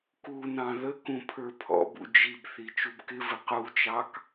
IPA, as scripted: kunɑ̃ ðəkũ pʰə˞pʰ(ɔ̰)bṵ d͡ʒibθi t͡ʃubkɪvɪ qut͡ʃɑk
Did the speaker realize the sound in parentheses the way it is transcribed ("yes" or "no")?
yes